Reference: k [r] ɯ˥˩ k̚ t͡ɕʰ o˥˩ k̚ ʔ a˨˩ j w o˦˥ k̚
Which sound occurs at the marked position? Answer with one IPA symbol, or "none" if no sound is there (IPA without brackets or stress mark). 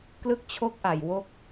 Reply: l